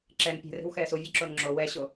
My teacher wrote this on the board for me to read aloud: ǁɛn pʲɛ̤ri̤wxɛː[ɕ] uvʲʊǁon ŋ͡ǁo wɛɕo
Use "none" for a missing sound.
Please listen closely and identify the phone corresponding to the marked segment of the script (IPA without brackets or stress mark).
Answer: s